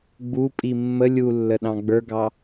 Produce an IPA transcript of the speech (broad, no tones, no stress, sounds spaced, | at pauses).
ɡ͡b u pʼ i mː ə lʲ u lː ə ɗ ɑ̃ ɡ͡b ə˞ ɡ ɑ